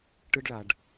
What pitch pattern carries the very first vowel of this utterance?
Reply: high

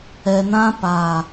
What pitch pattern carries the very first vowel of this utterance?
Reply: low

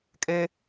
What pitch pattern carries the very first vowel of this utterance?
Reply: high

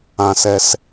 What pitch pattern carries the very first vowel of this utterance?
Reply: low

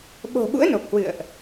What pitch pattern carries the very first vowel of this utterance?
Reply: low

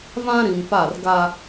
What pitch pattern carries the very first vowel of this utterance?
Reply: high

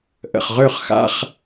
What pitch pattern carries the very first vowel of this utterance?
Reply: low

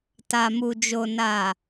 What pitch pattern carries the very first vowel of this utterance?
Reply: low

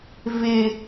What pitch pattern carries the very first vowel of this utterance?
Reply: high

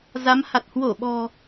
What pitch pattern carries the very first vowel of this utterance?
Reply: rising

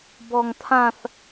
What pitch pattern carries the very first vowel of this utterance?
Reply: high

